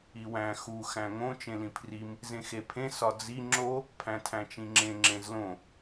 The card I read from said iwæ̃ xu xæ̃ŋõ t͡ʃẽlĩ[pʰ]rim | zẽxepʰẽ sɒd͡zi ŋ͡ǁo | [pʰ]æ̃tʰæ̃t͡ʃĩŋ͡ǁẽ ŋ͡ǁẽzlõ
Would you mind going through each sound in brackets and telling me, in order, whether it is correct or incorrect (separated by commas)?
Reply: correct, correct